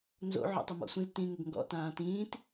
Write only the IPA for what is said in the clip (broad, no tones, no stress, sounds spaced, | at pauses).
n z o̰ ʕ ɔ̰ tˤ ɵ m ɔ̰ sʷ ə̃ z t ĩ ŋ ʏ ɡ ŋ ɡ ɔ̰ t ãː t ĩː t